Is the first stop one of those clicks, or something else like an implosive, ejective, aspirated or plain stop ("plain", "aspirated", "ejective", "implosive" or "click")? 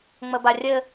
plain